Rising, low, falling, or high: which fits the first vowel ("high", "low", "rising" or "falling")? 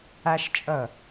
high